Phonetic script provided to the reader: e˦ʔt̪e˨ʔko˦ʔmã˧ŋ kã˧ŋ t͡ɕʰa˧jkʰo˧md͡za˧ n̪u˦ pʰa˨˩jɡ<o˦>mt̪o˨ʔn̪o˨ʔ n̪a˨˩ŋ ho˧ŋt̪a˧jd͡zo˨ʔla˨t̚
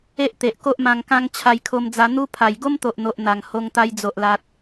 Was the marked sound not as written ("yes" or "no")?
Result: no